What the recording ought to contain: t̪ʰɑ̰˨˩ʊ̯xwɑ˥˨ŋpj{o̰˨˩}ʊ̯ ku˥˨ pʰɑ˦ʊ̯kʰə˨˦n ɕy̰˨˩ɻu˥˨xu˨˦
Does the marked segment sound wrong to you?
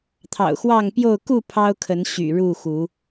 yes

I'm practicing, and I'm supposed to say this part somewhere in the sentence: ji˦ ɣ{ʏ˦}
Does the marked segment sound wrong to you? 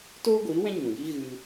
yes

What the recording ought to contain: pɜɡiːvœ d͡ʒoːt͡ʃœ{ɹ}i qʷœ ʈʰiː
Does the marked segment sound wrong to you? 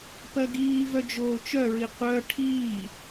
no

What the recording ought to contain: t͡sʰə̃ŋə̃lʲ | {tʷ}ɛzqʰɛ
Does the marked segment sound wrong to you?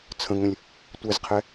no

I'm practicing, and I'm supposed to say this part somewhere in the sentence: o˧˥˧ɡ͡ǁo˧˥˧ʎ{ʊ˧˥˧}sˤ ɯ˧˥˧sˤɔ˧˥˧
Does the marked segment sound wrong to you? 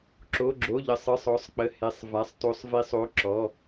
yes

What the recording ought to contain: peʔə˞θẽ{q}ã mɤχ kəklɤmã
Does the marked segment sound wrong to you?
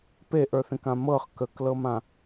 yes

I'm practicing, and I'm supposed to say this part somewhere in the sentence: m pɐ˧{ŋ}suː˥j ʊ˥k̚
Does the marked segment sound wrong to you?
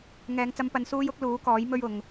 yes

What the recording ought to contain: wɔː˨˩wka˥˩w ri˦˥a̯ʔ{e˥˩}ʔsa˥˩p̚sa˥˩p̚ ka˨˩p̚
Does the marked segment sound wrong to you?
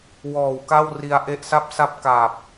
yes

